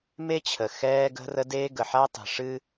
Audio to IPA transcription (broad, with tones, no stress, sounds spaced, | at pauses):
m e˦ t͡ɕʰ ə˨ x ɛː˦ ɡ ə̤˦ r ə˦ d eː˦ ɡ ə˨ ħ a˦ tˤ e̤˨ ʂ ɨ˦